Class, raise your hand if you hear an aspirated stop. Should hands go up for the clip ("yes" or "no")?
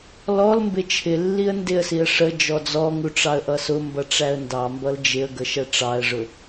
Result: yes